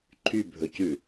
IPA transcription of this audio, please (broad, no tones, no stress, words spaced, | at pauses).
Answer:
ǃʰybʱɵcʉ